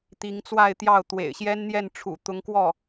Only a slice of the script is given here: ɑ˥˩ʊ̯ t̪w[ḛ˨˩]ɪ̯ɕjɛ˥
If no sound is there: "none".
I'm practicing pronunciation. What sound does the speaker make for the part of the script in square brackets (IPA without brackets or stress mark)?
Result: ḛ˨˩